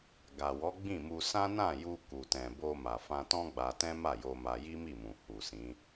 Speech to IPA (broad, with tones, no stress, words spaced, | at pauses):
ɡa˨wɔ˨˦ɡ͡bĩ˦˨mu˧ sã˦ nã˦˨ju˧ ku˨tɛ̃˨ bo˧ma˨ fã˧tɔ̃˦ɡ͡ba˧tɛ̃˦ ma˦˨jo˧ma˧ ji˦mi˦˨mũ˨ hu˨sĩ˨˦